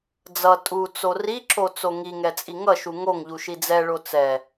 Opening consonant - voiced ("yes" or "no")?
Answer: yes